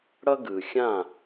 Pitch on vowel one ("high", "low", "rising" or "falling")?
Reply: high